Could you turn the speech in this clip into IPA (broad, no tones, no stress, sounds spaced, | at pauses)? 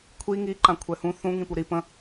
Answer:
kʷʰ i ŋ i ǃ ã kʷʰ ɛ h ũ θ ũ ŋ ĩ p u ɾ i p ə̃